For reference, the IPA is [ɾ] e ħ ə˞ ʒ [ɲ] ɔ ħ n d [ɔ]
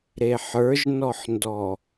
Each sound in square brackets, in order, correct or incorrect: correct, incorrect: n, correct

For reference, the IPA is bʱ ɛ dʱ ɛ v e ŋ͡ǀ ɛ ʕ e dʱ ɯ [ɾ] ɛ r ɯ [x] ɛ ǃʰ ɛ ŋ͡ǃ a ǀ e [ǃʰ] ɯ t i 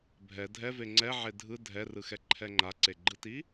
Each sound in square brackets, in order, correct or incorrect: incorrect: dʱ, correct, incorrect: ɡ͡ǃ

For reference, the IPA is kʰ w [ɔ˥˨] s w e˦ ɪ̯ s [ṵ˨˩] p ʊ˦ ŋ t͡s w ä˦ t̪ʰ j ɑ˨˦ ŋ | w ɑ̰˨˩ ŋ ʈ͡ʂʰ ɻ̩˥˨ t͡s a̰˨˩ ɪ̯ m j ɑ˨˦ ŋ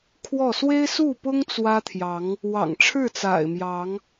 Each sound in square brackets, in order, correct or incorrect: correct, incorrect: u˥˨

